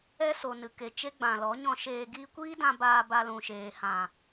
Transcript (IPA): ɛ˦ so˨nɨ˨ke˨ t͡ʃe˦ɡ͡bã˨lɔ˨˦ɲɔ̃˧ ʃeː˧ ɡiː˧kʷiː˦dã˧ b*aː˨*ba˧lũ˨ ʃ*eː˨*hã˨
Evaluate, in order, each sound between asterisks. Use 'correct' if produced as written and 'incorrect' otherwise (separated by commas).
incorrect, correct